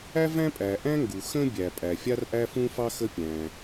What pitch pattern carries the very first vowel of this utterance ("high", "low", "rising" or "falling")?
high